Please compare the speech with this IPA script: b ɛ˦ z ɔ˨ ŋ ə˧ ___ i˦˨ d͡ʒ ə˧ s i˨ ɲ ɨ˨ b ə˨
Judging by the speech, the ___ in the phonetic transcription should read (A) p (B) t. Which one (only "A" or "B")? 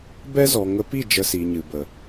A